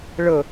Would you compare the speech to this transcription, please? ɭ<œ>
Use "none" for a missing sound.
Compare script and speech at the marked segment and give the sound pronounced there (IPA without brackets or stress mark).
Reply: ə